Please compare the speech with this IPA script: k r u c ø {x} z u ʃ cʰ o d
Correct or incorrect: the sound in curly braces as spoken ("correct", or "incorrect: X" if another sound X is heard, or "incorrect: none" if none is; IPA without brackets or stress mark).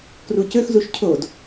correct